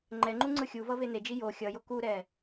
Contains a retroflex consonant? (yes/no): no